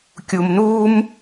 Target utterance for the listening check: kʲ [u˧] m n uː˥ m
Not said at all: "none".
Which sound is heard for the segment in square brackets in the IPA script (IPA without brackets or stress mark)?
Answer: u˧